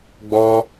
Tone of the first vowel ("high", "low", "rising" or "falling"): high